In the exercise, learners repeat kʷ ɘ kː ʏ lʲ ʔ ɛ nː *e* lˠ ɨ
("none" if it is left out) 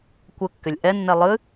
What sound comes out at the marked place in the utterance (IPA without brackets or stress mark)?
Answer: ɛ